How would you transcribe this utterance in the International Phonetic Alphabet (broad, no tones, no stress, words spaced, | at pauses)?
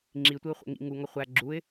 ŋ͡ǁitʷiʊ̯χʷḛ ŋḭ ŋuŋɒ χʷæ ɡ͡ǁuɪ̯